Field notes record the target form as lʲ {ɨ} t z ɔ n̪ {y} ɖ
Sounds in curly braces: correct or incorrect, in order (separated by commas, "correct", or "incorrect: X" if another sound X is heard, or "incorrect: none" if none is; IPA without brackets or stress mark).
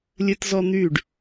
correct, correct